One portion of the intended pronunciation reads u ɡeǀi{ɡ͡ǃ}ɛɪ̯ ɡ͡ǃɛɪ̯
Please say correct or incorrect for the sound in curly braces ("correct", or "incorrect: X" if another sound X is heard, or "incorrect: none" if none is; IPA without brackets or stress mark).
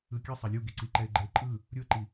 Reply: incorrect: ǃ